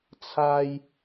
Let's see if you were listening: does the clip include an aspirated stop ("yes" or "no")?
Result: yes